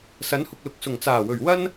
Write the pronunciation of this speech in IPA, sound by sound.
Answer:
s ɐ˨˥ n h ʊ˨ k̚ l ʊ˨ k̚ s ʊ˨˩ ŋ t͡s aː˨˩ w ɵ˨˩ ɥ w ɐ˥ n

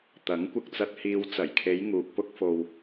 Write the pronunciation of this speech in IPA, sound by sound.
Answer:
t̪ ɐ˨˥ ŋ kʷ ɪ˧ k̚ t͡s ɐ˧ t̚ h iː˨ w t͡s ɐ˨˩ j kʰ e˨˧ j ŋ uː˨ k̚ p ʊ˧ k̚ f o˨ w

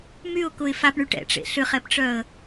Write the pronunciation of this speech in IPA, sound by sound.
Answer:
m y ʊ̯ k ʊ ɪ̯ f a p ɳ y ʈ ɛ̰ ʈ͡ʂ ḛ ɬ ʏ χ ɛ p ʈ͡ʂ œ ə̯

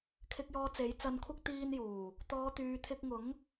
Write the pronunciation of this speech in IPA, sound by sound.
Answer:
kʰ ɪ˨ k̚ j ɔː˨ t͡s e˨˥ j t͡s ɐ˧ n kʷʰ ɐ˥ k̚ t̪ iː˧ n j uː˨˩ | t̪ ɔː˨˧ t̪ yː˨ t̪ʰ ɪ˧ k̚ ŋ ʊ˨˥ ŋ

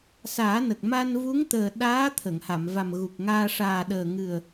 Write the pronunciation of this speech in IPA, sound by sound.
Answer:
s aː˨˩˦ n ə˨˩ k̚ m a˧ n v u˧˥ ŋ t̪ əː˨˩ ɗ aː˧˥ t̪ʰ ə˨˩˨ ŋ h a˨˩˨ m v a˨˩ m ɣ u˨˩ k̚ ŋ aː˧ ʂ aː˨˩ ɗ əː˨˩ ŋ ɨ˨˩ ə̯

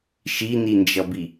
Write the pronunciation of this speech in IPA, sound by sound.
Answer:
ʃ i n i n d͡ʒ ʌ b i

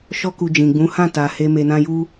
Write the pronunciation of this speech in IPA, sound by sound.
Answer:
ʃ ɔ˦ k u˧ d͡ʒ ĩ˨ ɡ͡b ũ˨˦ h ã˦˨ t a˧ h e˦ m e˧ n ã˦ j u˦

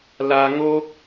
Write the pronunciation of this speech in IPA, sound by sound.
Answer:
l a˧ ŋ o˦ k̚

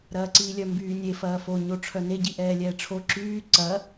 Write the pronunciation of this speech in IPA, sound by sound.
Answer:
ɾ ɐː ǀ iː lʲ œ m b yː nʲ e f ɐː f o ɲ o ʈ͡ʂʰ œ n e ɟ i ʔ ɛː lʲ ɛː ʈ͡ʂʰ o ǁ yː ǀ ɐ

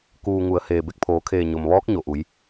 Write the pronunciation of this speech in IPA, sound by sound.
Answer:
k uː˩ ŋ u˩˧ ə̯ h eː˩ b e˧˩ k̚ pʰ oː˩˧ kʰ eː˧˩ ɲ o˩ m ʋ ɔː˧˥ k̚ ɲ o˩ ʔ u˩˧ j

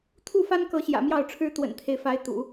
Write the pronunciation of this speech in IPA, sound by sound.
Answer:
t̪ʰ u˥˩ f a˥ n k ɤ˧˥ ɕ j ä̰˨˩ m j ɑ˥˩ ʊ̯ ʈ͡ʂʰ ɻ̩˥ t̪ w ə̰˨˩ n t̪ʰ e˦ ɪ̯ f a˧˥ ɪ̯ t̪ ṵ˨˩˦

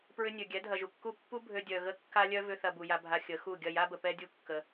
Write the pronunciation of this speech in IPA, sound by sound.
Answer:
p ɹ ʏ˧ nʲ ø˨ ɡʲ ɛ˨˦ dʱ ɐ˨ ʒ u˨ kː u˦˨ pː u˦ bʱ ø˧ dʲ œ˨ ɣ ə˦ kː a˦ lʲ œ˦ v ʏ˧ θ ɐ˧ b u˨ j a˧ bʱ a˧ xʲ ə˨˦ x u˦˨ ɡʲ ɐ˦˨ j a˦ b ə˨ p ɛ˦ dʲ u˦ kː ə˧

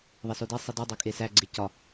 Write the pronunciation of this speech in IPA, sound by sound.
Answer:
ðˤ e s o d e sˤ i d u dˤ æ kʼ e s æ ɡ͡ǀ e c ɒ

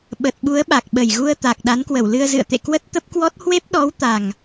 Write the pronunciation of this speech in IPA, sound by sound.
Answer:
ɓ ə˨˩ t̚ ɓ u˨˦ ə̯ ɓ a˨˩ k̚ ɓ ə˨˩ j ɣ u˧ ə̯ t̪ a˨˩ k̚ ɗ a˨˦ n k w ə˧˩ w l ɨ˧ ə̯ z ɨ̰˧˨ ə̯ t̪ ḛ˧˨ k w ə˦˥ t̚ t̪ ə˦˥ p̚ k w ɔ˦˥ t̚ h w e˦˥ p̚ ɗ ɔ˨˦ w t̪ a˨˩ ŋ

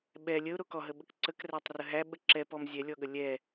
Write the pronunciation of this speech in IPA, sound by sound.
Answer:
ɓ ɛ lʲ ə ʊ̯ ɾ o k ɔ ɦ ə ɓ ə k ǀ ə k r æ tˤ r ə ɦ æ ɓ ə ǁ ɛ p ɔ m zʲ ɛ lʲ ɔ ɠ ə lʲ ɛ

